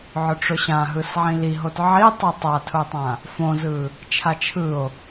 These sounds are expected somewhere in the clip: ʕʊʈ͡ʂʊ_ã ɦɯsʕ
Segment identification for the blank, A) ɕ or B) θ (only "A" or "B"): A